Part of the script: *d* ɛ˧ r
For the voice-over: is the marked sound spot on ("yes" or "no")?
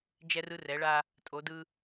no